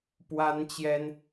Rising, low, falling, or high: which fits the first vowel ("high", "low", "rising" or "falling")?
high